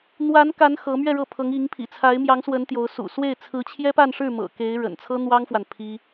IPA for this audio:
n̪ w a˧˥ n k a˧˥ n x ɤ˧˥ m ɥ ɛ˥˧ ɻ ɤ˥˩ pʰ ɤ˧˥ ŋ i˧˥ ŋ pʰ ḭ˨˩ t͡sʰ a˧˥ ɪ̯ m j ɑ˧˥ ŋ s w ə˧˥ n t̪ j o˧˥ ʊ̯ s ṵ˨˩ s w e˥˩ ɪ̯ t͡sʰ ɹ̩˧˥ t͡ɕʰ j ɛ˥ p a˥˧ n ʂ ɻ̩˥˩ m ɤ̰˨˩ k e˧˥ ɪ̯ ɻ ə̰˨˩ n t͡sʰ ɤ˥ n̪ w ɑ˥ ŋ f w a˨ n pʰ i˥

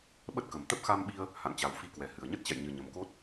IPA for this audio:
ɓ ə˦˥ t̚ k ə˨˩ m t̪ ə˦˥ p̚ x a˧ m ɓ i˧ ə̯ | h a̰˧˨ n t͡ɕ a˨˩ w f i˧ k w ɛ˨˩ h ɨ˨˩ ə̯ ɲ ə˦˥ t̚ t͡ɕ ɛ̰˧˨ j ɲ ɨ˨˩ ɲ ə˨˩ m k o˦˥ t̚

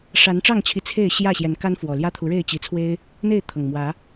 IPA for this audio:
ʂ a˨˦ n ʈ͡ʂ ɑ˥˨ ŋ t͡ɕʰ i˨˦ t͡sʰ e˥˨ ɪ̯ ɕ j ä˥˨ ɕ j ɛ˨˦ n k a˦ n f w ɔ˨˩ l j ä˦ t̪ʰ u˨˦ ɻ e˥˨ ɪ̯ t͡ɕ i˨˦ t͡sʰ w e˦ ɪ̯ | n̪ e˥˨ ɪ̯ t̪ʰ ɤ˨˩ ŋ m w ä˨˦

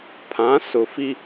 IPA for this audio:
pʰ ã˨˦ s ʊ˨ f i˦

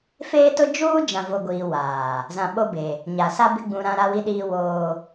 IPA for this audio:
f eː˦ t ʊ˦ d͡ʒ uː˦ d͡ʒ ã˨ v o˨ ɡʷ iː˨ w aː˨ | z ã˨ ɓ o˦ b e˨ | ɲ a˨ s a˦ b ɪ˦ ɡ͡b ũ˨ ɾ ã˦ ɾ a˦ w i˦ ɗ iː˦ w oː˦

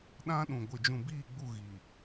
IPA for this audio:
ɗ ã˦ ɗ ũ˨ ɡʷ ɪ˨ d͡ʒ ũ˨ b iː˦˨ ɡ͡b u˦˨ ɣ i˨

